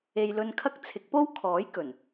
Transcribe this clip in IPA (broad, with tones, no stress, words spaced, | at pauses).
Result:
e˧j lɵ˧nkʰɐ˥k̚ t͡sʰɪ˨˥k̚po˥wkʰɔː˨˥j kɵ˨˩n